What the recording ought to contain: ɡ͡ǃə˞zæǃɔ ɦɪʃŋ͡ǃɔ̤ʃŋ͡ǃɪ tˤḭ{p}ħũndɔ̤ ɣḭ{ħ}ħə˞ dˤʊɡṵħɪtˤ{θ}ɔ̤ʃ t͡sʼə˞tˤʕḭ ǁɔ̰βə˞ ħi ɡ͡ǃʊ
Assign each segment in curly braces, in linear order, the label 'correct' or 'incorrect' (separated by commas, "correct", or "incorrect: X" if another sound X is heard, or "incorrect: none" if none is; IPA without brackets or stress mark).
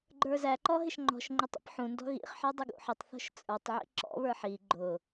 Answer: correct, incorrect: χ, correct